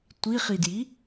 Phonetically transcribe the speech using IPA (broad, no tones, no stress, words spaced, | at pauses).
tʷiχidji